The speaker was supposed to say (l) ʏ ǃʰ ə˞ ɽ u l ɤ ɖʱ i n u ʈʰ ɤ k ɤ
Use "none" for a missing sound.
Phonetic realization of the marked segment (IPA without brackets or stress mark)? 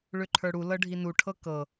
ɭ